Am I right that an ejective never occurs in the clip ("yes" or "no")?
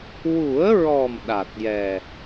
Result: yes